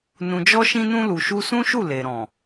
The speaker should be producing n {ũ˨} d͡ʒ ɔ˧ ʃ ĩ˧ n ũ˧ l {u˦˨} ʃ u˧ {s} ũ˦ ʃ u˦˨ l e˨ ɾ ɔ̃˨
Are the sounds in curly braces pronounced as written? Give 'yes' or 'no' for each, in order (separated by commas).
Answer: yes, no, yes